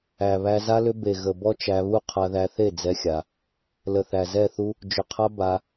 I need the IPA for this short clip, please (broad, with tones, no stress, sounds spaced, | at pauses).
æ˨ β æ˧ z a˦ l ʏ˦ b e˨ ɣ ə˨ b ɔ˦ t͡ʃ æ˧ β u˦ qʰ a˧ ð æ˧ θ e˦˨ d͡z ɛ˦ xʲ a˧ | l ə˨ θ æ˨ z ɛ˦˨ θ u˦ | d͡ʒ ʏ˨ qʰ a˦ b a˧